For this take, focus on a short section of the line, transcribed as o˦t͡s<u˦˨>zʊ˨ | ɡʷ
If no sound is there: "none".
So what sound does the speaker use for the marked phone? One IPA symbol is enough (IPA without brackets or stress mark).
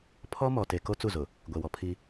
u˦˨